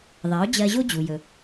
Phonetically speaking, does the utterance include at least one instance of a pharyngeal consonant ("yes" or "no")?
no